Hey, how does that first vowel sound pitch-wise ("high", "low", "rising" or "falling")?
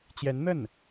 rising